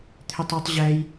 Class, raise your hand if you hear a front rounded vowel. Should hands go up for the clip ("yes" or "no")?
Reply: yes